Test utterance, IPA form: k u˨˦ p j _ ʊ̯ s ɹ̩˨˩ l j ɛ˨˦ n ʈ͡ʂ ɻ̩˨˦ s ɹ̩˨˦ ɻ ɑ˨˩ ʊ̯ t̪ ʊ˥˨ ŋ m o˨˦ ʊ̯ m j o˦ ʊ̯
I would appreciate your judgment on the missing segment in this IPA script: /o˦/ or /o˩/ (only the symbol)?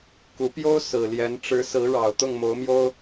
o˦